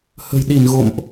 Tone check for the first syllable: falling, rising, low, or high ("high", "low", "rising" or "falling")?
low